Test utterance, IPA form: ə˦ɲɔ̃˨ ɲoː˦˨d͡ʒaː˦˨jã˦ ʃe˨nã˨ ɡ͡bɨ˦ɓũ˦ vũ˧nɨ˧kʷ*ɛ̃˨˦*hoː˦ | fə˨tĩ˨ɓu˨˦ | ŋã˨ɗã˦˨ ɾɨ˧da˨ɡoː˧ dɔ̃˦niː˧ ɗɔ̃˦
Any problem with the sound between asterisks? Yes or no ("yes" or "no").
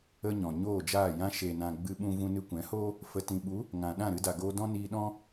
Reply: no